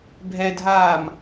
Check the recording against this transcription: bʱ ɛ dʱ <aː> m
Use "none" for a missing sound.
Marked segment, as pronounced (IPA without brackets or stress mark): aː